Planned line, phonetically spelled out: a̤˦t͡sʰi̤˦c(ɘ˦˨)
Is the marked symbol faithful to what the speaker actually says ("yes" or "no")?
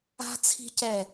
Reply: no